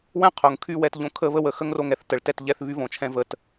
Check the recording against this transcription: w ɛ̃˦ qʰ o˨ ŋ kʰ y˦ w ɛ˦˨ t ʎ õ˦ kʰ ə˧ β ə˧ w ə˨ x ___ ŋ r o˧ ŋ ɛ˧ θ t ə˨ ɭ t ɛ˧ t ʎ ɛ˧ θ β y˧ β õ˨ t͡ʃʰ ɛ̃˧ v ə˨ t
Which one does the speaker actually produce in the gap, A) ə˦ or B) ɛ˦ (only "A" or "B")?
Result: A